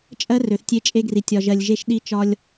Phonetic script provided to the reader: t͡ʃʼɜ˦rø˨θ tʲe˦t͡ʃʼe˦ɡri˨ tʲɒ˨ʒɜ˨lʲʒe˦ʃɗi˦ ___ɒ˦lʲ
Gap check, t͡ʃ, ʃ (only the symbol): t͡ʃ